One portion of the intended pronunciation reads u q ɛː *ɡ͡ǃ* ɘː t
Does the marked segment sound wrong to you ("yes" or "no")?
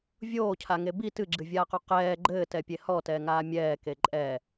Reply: no